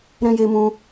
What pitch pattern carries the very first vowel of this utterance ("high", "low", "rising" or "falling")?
high